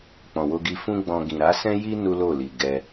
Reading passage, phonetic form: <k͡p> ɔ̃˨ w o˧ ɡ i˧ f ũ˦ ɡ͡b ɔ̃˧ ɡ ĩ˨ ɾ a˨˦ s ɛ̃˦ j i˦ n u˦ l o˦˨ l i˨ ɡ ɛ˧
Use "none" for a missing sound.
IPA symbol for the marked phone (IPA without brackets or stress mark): k͡p